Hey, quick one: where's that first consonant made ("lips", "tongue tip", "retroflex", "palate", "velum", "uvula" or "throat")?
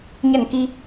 palate